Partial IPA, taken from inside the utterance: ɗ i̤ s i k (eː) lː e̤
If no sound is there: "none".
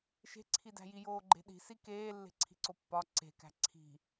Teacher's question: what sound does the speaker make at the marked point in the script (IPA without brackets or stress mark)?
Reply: eː